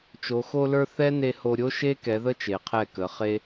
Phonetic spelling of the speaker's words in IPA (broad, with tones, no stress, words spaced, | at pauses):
t͡ʃo˨xo˧lə˞˧ θɛ˦ne˧ ho˧ɾʲo˦ʃe˦ kɛ˨˦ðə˦t͡ʃe˨ qʰɛ˦˨kə˨˦ χe˦